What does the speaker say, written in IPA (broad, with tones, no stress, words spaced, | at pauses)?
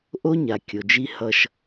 ʔo˦ɲa˨ kʲo˨d͡ʒi˦ hʌ˦ʃ